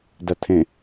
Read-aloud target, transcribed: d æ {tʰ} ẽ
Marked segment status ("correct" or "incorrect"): correct